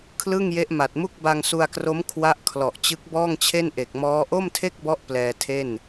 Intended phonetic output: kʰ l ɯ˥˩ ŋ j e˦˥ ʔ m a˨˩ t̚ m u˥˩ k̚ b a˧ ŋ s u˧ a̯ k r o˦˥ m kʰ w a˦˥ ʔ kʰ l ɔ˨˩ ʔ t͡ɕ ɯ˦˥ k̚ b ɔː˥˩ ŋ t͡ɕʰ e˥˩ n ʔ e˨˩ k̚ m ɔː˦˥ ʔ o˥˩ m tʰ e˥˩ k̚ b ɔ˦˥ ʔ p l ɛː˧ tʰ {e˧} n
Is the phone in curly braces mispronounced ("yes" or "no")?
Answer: yes